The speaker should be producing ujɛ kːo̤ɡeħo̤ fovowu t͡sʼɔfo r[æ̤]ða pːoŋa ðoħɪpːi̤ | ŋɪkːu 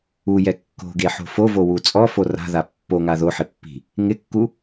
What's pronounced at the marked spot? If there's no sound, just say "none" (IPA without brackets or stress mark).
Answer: a̤